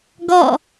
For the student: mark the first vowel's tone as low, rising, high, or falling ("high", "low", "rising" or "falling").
falling